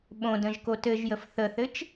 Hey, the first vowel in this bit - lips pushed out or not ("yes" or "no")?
yes